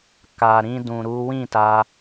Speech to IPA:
k a˨ ɾ ĩ˧ d ũ˨ ɾ u˨˦ w ĩ˦˨ t a˧

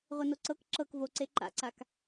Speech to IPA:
ʁʷ e n o ǀ ɤ k ǁ ɤ k v o ǀ e ǃ a̰ ǀ a k

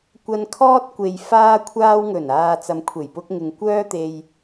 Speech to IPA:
kʷ ɐ˨ n kʰ ɔː˧ t̚ kʷ e˨ j f aː˧ kʷʰ aː˧ w ŋ ɵ˨˩ n aː˨ t͡s ɐ˨ m kʷʰ e˨˩ j p ʊ˧ k̚ ŋ ɪ˨ ŋ kʷ œː˥ t̪ e˧ j

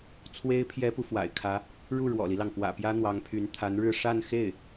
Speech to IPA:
t͡sʰ w e˥ ɪ̯ pʰ j ɛ˥ p u˨ f w a̰˨˩ ɪ̯ kʰ ä˧˥ | ɻ u˥˩ ɻ w ɔ̰˨˩ l i˦ l ɑ˩ ŋ k w ä̰˨˩ p j ä˥ n̪ w ɑ˧˥ ŋ pʰ y˧˥ n t̪ʰ a˧˥ n ɻ ɻ̩˥˧ ʂ a˥˧ n x e˥˩ ɪ̯

